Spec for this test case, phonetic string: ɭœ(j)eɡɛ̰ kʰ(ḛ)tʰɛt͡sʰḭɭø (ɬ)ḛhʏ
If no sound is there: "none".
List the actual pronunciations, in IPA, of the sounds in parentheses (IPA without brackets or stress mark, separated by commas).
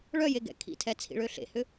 j, ḭ, ɬ